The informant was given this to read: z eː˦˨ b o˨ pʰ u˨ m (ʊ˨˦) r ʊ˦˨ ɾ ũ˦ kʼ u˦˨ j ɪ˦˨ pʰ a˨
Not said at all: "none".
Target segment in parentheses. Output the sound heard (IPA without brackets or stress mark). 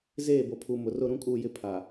ʊ˨